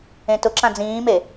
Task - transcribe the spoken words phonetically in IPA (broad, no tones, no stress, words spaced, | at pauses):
ẽtʊǁã d͡zĩːme